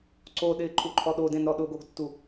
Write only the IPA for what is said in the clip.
ǀoɗɪː ǃʼuǃʰɔɗodẽn ɾɔɗʊɡoɡtːu

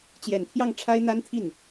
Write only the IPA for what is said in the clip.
t͡ɕjɛ˨˩nt̪ʰjɑ˥˩ŋʈ͡ʂʰa˥ɪ̯ n̪a˥nt̪ʰi˥˩n

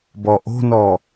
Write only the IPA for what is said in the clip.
bɔʔo̤nɔ

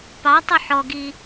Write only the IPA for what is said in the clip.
pɑtˤʉ ħɔɡi

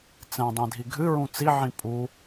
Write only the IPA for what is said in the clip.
t͡sɛ̃dˤĩdʱi ɡʱɨɹũ t͡siʕĩ pʼu

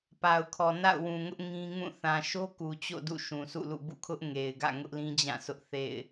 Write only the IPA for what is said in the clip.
pa˨ʊ̯kʰɔ˨ na̰˦˨ʊ̯wũ˨ŋʊ˦ʔ ŋĩ˦ ŋũ˦˨ θã˨ʃo˦ ku˨ t͡ɕo̰˦˨ dṵ˦˨ʃũ˨sʰṵ˦˨lṵ˦˨ bṵ˦˨kʰʊ˦ʔŋe˨ɪ̯ɡä̰˦˨ ŋʊ˦ʔlĩ˦d͡ʑã˦˨sʰʊ˦ʔ θḛ˦˨ɪ̯

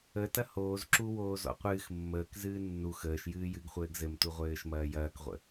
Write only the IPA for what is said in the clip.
ətɐ hoːzǁuwoː zɔ̰qʷɨːx mːəːk zɨːnːu xəːʃjɨː jɨɡχʷɘːɡ zɘmtuʁʷɘːʃmɐː jɐːkʁʷə̰

